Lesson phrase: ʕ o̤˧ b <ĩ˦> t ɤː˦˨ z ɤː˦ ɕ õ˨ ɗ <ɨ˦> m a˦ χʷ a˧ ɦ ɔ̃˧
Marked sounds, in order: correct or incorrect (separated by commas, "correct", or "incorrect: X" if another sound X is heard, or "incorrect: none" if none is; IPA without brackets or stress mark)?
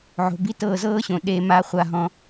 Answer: incorrect: i˦, incorrect: e˦